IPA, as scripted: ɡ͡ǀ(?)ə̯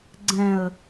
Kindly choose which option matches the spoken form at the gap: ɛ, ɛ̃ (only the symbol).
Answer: ɛ̃